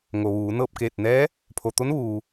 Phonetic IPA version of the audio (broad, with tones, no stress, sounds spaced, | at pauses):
ŋ o˩ ʋ uː˩˧ n ɤː˥˨ p̚ k eː˧˩ t̚ n ɛː˧˥ | pʰ o˩ t̪ o˧˥ n ʋ uː˩